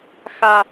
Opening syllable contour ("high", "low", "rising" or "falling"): low